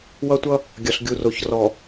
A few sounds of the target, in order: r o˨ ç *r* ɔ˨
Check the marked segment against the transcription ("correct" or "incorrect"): correct